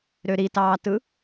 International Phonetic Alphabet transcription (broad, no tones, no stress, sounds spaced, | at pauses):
ɾ ø ɾ i t ɑː t ɯ